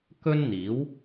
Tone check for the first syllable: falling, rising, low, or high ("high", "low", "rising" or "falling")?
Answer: high